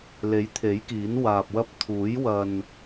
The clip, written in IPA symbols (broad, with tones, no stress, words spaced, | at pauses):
le˨˥jt̪ʰe˨˥jkiː˨˥n waː˧p̚wɐ˥p̚ t̪ʰuː˨˥j wɐ˧n